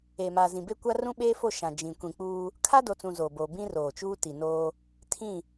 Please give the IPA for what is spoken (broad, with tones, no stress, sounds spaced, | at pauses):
e˨ m aː˨ z ĩ˨ b e˦ kʷ a˦ r ũ˦ ɓ eː˦ f o˦˨ ʃ ã˨ d͡ʒ ĩ˨ kʷ ĩ˨ k͡p uː˦ | kʰ a˦ d o˨ t͡s ũ˨ z oː˨ b o˨ b ĩ˦ r oː˨ t͡ʃ uː˦ t i˨ n oː˦ | tʰ ĩ˦˨